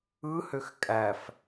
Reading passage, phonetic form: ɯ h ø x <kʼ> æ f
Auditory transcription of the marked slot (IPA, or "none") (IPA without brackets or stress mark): kʼ